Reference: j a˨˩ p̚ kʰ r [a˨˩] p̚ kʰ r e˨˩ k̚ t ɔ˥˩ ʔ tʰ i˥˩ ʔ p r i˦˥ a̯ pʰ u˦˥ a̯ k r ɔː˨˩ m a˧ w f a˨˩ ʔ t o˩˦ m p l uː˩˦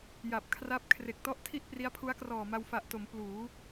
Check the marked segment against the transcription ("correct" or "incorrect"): incorrect